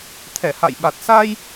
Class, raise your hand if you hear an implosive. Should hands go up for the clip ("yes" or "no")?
yes